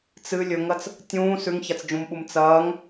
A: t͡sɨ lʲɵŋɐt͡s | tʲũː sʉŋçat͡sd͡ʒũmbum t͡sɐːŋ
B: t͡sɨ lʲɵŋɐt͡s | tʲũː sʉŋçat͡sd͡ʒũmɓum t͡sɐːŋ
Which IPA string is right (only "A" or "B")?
B